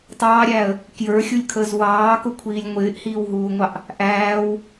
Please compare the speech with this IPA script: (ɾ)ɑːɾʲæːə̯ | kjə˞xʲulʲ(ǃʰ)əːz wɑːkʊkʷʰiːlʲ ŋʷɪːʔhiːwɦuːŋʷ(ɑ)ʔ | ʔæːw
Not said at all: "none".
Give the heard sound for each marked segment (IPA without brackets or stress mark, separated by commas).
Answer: tˤ, kʰ, ɑ